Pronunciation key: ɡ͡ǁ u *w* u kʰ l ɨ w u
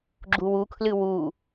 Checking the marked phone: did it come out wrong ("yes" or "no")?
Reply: no